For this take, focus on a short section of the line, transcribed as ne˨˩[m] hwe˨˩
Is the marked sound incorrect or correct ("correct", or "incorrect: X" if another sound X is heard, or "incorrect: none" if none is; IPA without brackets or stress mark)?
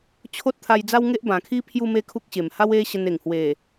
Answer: incorrect: ŋ